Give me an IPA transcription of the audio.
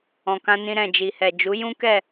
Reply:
ɔ̃˨ k ã˧ n ĩ˧ ɾ ɛ̃˨ d͡ʒ i˨ h ɛ˨ d͡ʒ u˨˦ j ũ˦ k ɛ˦˨

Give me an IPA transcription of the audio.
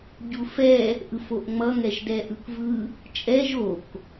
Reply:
ɟ u f ɛ | ʔ ɯ f o ʔ ŋ͡m ʌ ŋ ɛ ʒ d ɛ ʔ ɯ k v ɯ | t͡ʃʼ ɛ ʒ o k

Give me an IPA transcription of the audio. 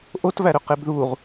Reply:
ʔ o t v æ ɾ ø q e b ð u ʁ

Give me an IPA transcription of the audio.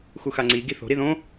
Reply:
x u x a ŋ͡ǀ i ɡ i θ o̤ ɾ i ð õ

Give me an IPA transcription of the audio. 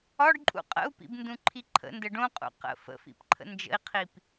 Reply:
ɒ ɖ ǃʼ ṵ qʼ ə̰ u̯ p ḭ b n d ũ ǃʰ i ǃʰ ə̰ n d ə ɖ õ qʼ ṵ q ə̰ f ə̰ f ḭ p ǃʰ ə̰ n d͡ʒ ə̰ i̯ qʰ i p

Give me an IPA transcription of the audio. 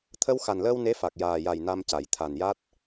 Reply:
t̪ʰ ə˧ w x a˨˩ n l əː˧ w n e˧˥ f a˨˩ k̚ j aː˨˩ j a˨˩ j n a˧ m c a˨˩˨ j t̪ʰ a˨˩ n j a˦˥ t̚

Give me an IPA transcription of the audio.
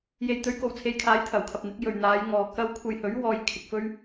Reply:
j e˨ j t̪ ɵ˨˥ ɥ k o˨˩ w t͡sʰ e˨ j kʰ aː˨˥ j t̪ʰ ɐ˨˩ w kʰ ɐ˨ p̚ n̪ ɪ˨˥ k̚ j ɵ˨ ɥ n̪ aː˨˧ j ŋ ɔː˨ k ɐ˥ w kʷʰ ɐ˧ j h ɵ˨˥ ɥ w ɔː˧ j kʰ ɪ˧ k̚ f ɵ˥ ɥ

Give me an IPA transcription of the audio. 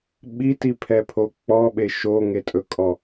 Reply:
ɓ i t i pʰ ɛ pʰ o k͡p ɔ ɓ e ʃ o ŋ e tʼ ɵ kʼ ɔ

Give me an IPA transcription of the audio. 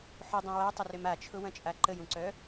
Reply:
ħ ʊ dˤ ɐ̃ w a tˤ ə r ʏ m a t͡ʃʰ ʊ w ɐ̃ t͡ʃʼ a ǃ ə j ũ ǀ œ

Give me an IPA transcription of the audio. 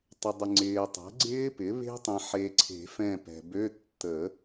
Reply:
tˤ ɪ˨ dˤ ɪ˨ ŋ͡ǀ ɪː˨ tˤ ɛ̤˩˥ ɡ͡ǀ ɪː˦˥ p ɪ˩˥ β e̤˦˥ tˤ ẽ˨ ħ e˨ ǀʰ e̤˨˩˦ f ɛ̃˦˨ p ɛ̤˨ b ø˧˥˧ tː ə˨˩˦

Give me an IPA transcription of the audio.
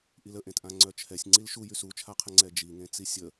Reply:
ʔ i l ə ʔ ẽ t ʔ ã ŋ͡ǀ œ t͡ʃʰ ɛ sʲ ŋ͡ǀ i l ʃ u j y s u t͡ʃʰ a qʰ ə ŋ͡ǀ ɛ d͡ʒ i ŋ ẽ t͡s i sʲ ə

